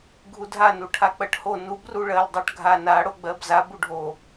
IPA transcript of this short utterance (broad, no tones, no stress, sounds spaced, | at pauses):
ɡʱ u dʱ a n u ʈʰ a k͡p ɜ ʈ h o n u b r u ɭ ɜ l dˤ ɜ ʈ ɡʱ a n a ɽ o ɡ͡b ɜ b z a b u ɖʱ o